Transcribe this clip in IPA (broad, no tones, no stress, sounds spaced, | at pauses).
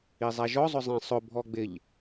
i zˤ æ ʒ ɔ zˤ ʊ zˤ ɛ̃ sˤ ʊ bʱ ɔ ɡ͡b ɪ ʎ